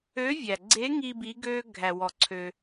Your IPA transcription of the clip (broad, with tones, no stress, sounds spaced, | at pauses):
ø˧˥ vʲ æ˩ ɡ͡ǀ e˧˥ ŋ i˧ b i˧˥ ɡ ø˥ ɡʱ æ˩ w ɔ˩ ǀʰ ø˩